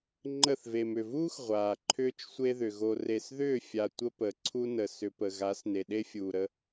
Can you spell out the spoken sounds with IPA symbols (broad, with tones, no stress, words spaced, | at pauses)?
ŋ͡ǃə˦˨θ ve˨mʏ˨vuː˦x ʁʷaː˨ǃʰʏː˦t͡ʃsʷe˦ðʏ˨ ɣo˨re˨sðʏː˦˨fʲa˨ tʷə˦pə˨ ǀʰu˦nə˨sʏ˧pə˨ ɣa˨˦sne˨ ɗe˦fʲuː˨ɾə˦